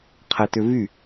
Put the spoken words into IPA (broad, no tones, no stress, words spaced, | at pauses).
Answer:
qʰɛtʏvy